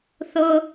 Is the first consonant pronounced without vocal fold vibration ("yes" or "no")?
yes